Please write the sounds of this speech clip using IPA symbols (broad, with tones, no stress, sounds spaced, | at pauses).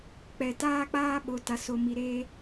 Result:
k͡p ɛ˨ t aː˦ k͡p aː˦ ɓ o˨ t a˨ s o˨ m i˨ ɾ eː˦